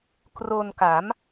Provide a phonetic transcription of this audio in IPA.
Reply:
kro˧nka˩˦m

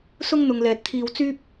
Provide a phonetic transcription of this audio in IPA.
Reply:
sʊ˥ŋn̪ʊ˨ŋ lɛː˨t̚t̪ʰiː˧wt͡syː˥p̚

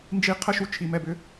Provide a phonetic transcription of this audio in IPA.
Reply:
nd͡ʒi˧qʰə˦ʃu˧ t͡ʃʰi˨mɛ˧bʏ˧

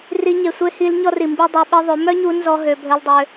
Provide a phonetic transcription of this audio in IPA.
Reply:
ri˧ɲe˨sʷe˦ hi˧lɲɔ˦ri˨ mbi˦ dˤø˧ ɓe˦ðˤø˨˦ mœ˦ɲu˧ nzɔ˦ ɦø˧ bʱœ˦ldˤø˦

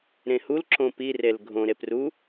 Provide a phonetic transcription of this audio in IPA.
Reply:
ɾẽhul ǁõpi relɡʱõ ɾepru

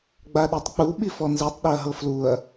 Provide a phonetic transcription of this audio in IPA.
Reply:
ɡ͡baɗitˤk͡pu ɓifɔnzitˤ ɗiɐ̯ɦɤfluɐ̯

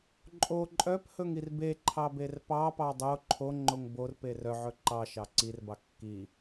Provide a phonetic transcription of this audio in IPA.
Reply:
ǃʼo ǃʼœphɵŋir beǃʰɑber pɑpɑ dˤo ǃʰoŋ͡ǃoŋ borpe rœʕɵ ǃɑʃɑ ǀirbɑ kːi

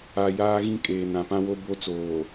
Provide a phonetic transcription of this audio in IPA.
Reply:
a˨ jaː˦ɣĩ˦ kʼeː˨nã˨pã˦wo˦ bo˦t͡soː˨

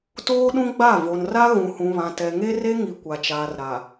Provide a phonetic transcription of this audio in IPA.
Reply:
toː˦ɗũ˦ɡ͡ba˦˨ vo˨nra˦ ɣũ˨hũ˨βã˨ tɛ˨ŋe˦re˦ŋi˨ kʷa˨t͡ʃaː˨rɾa˨

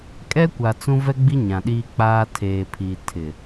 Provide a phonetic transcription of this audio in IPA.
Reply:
kʼɛ˦kʷa˨ t͡sũ˦ vɛ˦ɡ͡bi˦ ɲã˨ɗiː˦k͡paː˦ tʰeː˨pʰiː˨ tʰɪ˨

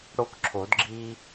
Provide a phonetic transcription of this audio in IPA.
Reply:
ɽo˦kǁʰo˨˩˦dɡ͡ǁi˦

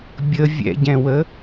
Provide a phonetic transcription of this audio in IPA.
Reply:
bʲə vʲɛ̰ɟɛ̃wə

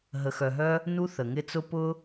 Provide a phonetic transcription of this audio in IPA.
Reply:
ɦə˩xœ˩ɦœ˧ | nu˧θə˩ŋɪ˧t͡sʊ˧ pʊ˧

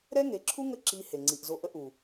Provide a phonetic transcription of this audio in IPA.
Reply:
ɾɛ˦ŋe˨˦ǁʰu˦ ŋə˦ǁi˧ he˨ŋ͡ǀi˨ʔzo˧ ʔə˧ʔu˨

